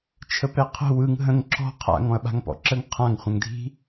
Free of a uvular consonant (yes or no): no